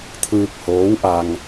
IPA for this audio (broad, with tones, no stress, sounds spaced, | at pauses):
t̪ʰ ɯː˧ k̚ h oː˧˥ w ʔ a˧ ŋ